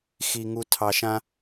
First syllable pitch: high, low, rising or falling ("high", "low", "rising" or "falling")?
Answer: low